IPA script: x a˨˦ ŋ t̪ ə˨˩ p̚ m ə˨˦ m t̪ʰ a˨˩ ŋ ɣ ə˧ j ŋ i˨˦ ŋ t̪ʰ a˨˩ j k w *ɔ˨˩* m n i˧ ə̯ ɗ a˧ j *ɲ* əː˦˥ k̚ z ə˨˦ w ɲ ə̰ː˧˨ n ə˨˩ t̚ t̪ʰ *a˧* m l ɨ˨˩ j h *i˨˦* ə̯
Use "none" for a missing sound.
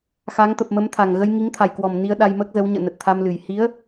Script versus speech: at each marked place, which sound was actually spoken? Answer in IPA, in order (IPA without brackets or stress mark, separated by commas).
ɔ˨˩, m, a˧, i˨˦